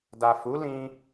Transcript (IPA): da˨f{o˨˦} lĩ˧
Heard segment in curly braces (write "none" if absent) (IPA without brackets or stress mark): u˨˦